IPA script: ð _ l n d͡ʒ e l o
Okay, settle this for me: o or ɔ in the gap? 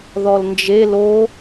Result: ɔ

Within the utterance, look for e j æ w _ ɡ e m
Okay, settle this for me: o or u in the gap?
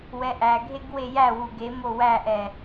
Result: u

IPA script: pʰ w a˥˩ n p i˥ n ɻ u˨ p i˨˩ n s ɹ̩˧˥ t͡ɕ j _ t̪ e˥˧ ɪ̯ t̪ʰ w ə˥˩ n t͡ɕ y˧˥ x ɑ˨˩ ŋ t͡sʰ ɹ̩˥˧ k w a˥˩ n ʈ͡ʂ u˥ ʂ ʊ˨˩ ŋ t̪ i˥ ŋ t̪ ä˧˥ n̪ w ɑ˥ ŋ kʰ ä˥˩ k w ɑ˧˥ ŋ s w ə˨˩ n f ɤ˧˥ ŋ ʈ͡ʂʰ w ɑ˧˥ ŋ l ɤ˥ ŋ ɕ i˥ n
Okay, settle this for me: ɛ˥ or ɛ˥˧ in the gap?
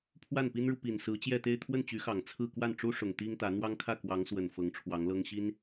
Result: ɛ˥˧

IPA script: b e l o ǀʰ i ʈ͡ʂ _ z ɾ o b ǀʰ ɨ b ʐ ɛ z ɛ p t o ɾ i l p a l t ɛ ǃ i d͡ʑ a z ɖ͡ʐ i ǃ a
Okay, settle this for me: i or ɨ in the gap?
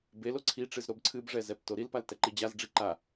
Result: ɨ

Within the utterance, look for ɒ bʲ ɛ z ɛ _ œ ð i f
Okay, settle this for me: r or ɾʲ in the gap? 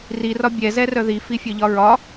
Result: r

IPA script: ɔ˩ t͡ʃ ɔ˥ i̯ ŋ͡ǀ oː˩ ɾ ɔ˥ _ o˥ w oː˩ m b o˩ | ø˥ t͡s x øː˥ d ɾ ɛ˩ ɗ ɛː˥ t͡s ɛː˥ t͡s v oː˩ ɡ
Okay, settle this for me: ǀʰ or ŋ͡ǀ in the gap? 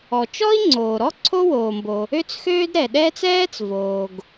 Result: ǀʰ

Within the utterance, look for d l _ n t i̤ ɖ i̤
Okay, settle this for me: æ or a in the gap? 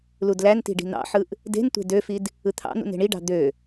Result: æ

